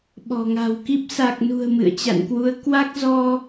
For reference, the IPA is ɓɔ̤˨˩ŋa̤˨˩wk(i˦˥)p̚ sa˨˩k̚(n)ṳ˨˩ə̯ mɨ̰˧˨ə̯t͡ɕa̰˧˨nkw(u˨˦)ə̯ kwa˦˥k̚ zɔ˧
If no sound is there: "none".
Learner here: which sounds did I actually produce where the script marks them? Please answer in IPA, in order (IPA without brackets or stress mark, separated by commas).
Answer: i˦˥, n, u˨˦